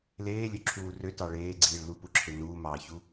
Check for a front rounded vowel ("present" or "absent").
present